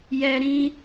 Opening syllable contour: high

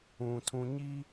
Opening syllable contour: low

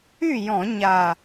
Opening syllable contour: falling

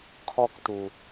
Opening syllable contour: high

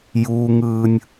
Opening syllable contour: high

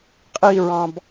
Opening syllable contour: falling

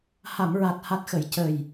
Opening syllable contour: low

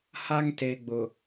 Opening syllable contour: high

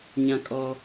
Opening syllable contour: high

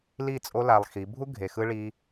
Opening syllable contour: falling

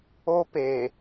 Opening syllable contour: high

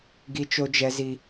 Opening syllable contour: high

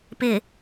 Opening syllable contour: low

